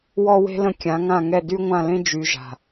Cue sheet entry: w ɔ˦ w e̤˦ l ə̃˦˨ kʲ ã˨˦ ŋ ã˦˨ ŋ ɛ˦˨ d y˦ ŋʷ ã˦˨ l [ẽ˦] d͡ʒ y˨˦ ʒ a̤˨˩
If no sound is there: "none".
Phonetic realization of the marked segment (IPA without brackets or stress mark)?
ẽ˦